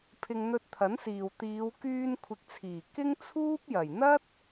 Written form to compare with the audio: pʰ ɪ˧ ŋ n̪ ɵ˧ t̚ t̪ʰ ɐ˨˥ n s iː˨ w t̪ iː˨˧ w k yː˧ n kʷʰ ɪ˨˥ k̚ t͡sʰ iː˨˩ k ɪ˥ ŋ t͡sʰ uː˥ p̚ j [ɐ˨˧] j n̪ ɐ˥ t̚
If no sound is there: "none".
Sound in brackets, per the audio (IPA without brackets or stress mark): ɐ˨˩